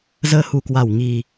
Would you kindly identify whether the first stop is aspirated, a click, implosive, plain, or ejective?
plain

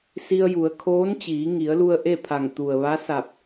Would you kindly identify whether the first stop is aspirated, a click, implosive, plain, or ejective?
aspirated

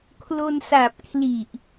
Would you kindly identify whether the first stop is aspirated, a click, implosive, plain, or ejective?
aspirated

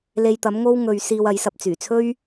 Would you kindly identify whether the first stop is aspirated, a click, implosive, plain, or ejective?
plain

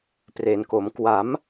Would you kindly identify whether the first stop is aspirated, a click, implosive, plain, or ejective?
plain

